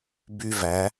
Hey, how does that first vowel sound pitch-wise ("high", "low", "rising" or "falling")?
high